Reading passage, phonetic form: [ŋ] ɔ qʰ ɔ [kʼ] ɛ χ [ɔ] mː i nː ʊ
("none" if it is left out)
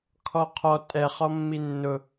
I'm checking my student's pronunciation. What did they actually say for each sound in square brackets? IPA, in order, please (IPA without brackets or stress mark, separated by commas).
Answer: kʰ, tʼ, ɔ